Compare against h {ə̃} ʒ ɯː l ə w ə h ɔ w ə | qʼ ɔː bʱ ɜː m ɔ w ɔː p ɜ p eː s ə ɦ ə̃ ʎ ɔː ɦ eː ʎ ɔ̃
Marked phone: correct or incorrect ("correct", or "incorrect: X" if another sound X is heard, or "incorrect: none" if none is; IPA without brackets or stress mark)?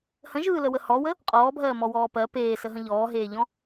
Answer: correct